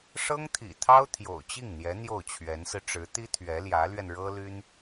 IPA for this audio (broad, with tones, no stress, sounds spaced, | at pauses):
ʂ ɤ˥ ŋ t̪ʰ ḭ˨˩ t̪ʰ ɑ˥ ʊ̯ t̪ʰ j o̰˨˩ ʊ̯ t͡ɕ i˥˩ ŋ n̪ j ɛ˧˥ n̪ j o˥˩ ʊ̯ t͡ɕʰ ɥ ɛ˧˥ n s ɹ̩˧ ʈ͡ʂ ɻ̩˧˥ t̪ i˥ t̪ʰ ɥ ɛ˧˥ l j ä˧˥ l ɥ ɛ˧ n ɻ ɤ˥ l y˥ n